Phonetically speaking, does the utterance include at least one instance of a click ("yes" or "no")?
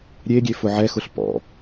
no